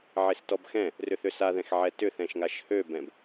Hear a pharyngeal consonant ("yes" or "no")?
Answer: yes